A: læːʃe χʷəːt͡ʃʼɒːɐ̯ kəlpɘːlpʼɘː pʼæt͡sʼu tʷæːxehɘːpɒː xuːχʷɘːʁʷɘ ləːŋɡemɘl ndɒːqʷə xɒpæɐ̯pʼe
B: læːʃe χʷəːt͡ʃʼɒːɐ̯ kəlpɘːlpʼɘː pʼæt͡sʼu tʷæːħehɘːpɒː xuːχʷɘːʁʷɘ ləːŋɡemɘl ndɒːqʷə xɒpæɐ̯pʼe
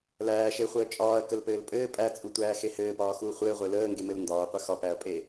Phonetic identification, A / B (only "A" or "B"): A